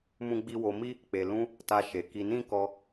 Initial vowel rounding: rounded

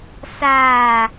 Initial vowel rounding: unrounded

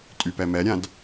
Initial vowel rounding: rounded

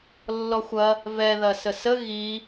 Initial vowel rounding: rounded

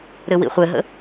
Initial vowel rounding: unrounded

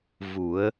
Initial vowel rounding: rounded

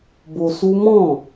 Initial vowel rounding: rounded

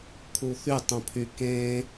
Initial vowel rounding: rounded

